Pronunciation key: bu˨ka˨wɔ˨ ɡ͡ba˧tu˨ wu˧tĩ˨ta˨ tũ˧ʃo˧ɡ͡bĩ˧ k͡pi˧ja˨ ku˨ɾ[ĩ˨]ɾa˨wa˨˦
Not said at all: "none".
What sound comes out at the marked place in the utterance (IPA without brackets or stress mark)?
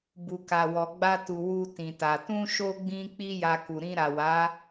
ĩ˧